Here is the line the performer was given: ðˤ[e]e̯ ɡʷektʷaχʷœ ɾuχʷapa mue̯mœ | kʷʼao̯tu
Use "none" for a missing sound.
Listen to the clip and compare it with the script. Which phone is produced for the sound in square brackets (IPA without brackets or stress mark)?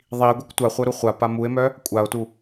i